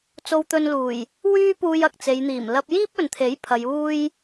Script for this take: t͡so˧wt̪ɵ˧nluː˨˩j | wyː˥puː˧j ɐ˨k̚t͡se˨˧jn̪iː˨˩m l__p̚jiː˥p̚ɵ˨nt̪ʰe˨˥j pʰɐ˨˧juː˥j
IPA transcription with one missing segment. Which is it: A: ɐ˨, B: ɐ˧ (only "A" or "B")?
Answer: B